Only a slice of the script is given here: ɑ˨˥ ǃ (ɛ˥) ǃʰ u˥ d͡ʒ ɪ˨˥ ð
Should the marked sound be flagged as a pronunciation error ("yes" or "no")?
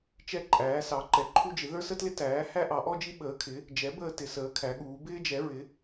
yes